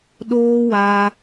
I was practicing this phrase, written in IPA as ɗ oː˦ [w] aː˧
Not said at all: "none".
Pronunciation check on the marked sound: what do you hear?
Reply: w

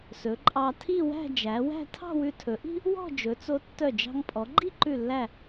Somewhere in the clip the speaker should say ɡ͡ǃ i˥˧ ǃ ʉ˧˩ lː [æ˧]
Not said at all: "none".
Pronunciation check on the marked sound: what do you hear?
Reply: æ˧˩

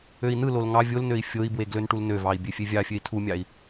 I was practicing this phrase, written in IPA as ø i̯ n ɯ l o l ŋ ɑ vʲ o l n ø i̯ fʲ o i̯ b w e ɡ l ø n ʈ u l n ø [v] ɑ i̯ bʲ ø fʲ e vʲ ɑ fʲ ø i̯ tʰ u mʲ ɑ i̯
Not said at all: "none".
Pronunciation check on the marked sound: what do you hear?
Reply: v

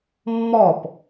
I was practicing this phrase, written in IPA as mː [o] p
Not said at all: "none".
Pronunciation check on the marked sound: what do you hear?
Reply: ɔ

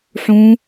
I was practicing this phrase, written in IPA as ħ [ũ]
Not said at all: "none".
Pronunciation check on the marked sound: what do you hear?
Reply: ũ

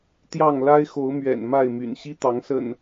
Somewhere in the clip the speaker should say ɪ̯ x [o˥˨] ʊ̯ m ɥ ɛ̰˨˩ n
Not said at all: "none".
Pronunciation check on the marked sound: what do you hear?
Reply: o˨˦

